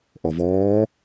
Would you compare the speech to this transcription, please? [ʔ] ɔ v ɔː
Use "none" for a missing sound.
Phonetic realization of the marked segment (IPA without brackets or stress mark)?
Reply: ʔ